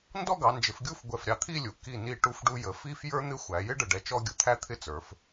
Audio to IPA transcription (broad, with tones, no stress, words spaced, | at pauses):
ndɔ˥˧ɡɑ˩˧nd͡ʒɪ˩˧fɡʲu˥˧f ɡʷɛ˧˩fɾʲɑ˧t̪ʰi˥˧lʲu˩˧ ki˧˩ni˧˩ ʈu˧fɖu˧jə˩˧ fi˥f jə˞˥n̪ɪ˥ xʷæ˩˧jɪ˥ɖə˧˩ɖɛ˧ t͡ʃɔ˥ɡʲʊ˧t̪ʰæ˥t̪ʰɪ˥ t͡sə˞˩˧f